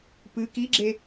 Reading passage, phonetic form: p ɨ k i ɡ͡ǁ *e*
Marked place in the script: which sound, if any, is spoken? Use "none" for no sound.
e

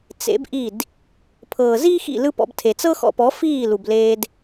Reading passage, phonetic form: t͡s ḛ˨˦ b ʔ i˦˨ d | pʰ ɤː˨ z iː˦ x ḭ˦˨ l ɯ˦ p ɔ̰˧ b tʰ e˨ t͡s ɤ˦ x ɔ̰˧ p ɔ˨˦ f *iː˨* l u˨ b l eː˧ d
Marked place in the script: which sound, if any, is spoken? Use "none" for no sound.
iː˦˨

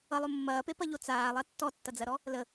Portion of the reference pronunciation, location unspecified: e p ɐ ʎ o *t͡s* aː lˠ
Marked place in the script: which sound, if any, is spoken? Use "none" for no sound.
t͡s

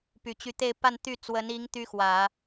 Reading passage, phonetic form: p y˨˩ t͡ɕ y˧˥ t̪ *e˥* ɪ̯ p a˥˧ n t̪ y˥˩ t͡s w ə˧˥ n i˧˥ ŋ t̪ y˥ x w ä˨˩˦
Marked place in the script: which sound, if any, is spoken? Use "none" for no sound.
e˥˧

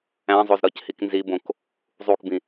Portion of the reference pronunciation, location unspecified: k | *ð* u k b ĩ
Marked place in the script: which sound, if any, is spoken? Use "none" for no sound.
zˤ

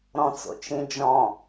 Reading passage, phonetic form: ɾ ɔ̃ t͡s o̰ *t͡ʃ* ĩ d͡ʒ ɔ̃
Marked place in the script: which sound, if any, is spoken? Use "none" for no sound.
t͡ʃ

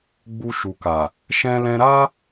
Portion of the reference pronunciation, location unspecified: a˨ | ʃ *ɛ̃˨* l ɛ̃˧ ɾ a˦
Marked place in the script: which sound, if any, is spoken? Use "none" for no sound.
ɛ̃˧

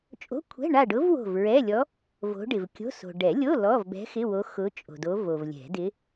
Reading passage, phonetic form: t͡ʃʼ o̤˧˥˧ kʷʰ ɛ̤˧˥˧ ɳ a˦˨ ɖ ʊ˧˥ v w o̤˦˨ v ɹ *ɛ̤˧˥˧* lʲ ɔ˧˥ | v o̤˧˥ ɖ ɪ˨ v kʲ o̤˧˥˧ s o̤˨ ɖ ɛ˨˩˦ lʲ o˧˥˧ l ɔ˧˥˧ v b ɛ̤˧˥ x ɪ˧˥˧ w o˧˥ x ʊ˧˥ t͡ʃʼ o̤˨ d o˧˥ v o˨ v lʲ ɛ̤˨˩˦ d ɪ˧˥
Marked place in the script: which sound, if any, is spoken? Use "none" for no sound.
ɛ˧˥˧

